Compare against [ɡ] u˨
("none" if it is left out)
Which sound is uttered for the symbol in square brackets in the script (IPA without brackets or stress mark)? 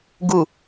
ɡ